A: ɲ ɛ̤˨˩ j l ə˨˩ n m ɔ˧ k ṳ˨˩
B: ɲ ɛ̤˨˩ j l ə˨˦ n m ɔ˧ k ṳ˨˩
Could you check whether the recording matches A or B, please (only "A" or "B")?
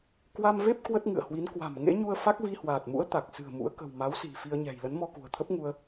B